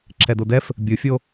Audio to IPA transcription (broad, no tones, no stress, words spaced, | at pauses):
ǁʰɛdodɛf | bʲɯfʲo